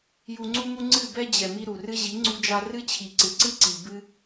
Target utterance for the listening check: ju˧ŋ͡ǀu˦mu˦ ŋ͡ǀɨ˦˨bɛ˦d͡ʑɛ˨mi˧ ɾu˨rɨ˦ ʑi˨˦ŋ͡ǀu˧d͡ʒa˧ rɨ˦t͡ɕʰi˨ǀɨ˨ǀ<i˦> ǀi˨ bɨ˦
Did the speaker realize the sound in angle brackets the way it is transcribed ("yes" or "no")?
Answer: no